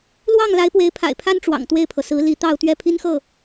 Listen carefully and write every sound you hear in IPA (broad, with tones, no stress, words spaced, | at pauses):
lwɑ˥˩ŋ la˧˥ɪ̯pwe˧˥ɪ̯ pʰa̰˨˩ɪ̯pʰa˥n ʈ͡ʂwɑ̰˨˩ŋt̪we˥˩ɪ̯pʰɤ˩ sɹ̩˧˥li˧˥ t̪ɑ˥˧ʊ̯t̪ɥɛ˥˩pʰi˥nxɤ˥˩